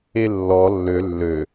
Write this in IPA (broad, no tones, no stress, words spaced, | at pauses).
elːɔ lːø lːø